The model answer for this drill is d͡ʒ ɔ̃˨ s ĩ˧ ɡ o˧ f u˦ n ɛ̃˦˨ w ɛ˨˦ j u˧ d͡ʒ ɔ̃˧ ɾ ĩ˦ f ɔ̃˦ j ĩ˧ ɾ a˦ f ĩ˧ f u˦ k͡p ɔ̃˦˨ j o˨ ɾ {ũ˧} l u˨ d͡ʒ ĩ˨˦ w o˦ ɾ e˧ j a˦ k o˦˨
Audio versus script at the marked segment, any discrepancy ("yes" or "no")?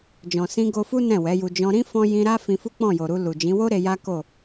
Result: yes